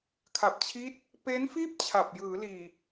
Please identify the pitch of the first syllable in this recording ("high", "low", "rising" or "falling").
low